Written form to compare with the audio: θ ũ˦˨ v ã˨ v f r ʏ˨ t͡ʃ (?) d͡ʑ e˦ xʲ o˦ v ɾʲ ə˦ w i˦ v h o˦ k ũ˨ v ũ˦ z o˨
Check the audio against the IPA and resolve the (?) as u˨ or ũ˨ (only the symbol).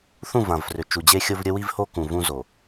u˨